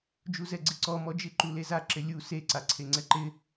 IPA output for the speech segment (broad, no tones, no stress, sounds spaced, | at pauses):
d͡ʒ u z ɛ ɡ͡ǀ ɪ ǀ ɔ m ɔ d͡ʒ ɪ ǃ u l e z a ǁ ɪ lʲ u s e ǀ a ǀʰ e ŋ͡ǀ ɛ ǃ ɪ